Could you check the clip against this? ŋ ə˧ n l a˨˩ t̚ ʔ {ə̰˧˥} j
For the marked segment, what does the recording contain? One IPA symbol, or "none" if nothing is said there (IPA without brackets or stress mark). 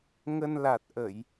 ə˧˩˨